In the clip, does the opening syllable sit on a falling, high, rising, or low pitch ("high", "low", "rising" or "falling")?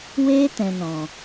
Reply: high